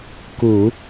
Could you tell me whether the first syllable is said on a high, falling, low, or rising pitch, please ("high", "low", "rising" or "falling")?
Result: low